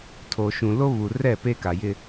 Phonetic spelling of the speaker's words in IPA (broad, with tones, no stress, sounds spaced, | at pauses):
tʰ o˨ ʃ ũ˨ l o˦ β u˨ r ɛ˦˨ p e˦ k a˨ j ɪ˦